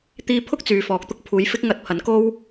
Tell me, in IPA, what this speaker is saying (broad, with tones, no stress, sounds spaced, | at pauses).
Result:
t̪ iː˧ pʰ ʊ˥ k̚ t͡s yː˨ f ɔː˨ k̚ t̪ ʊ˥ k̚ pʰ uː˨˧ j f ɪ˥ k̚ ŋ ɐ˧ t̚ pʰ ɐ˨˧ n k o˥ w